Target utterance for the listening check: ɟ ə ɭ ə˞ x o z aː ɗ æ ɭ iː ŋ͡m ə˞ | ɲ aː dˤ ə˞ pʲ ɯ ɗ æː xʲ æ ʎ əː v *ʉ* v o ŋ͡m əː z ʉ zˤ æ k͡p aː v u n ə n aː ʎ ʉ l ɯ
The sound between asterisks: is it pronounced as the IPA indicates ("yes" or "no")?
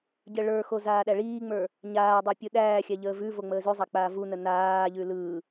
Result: yes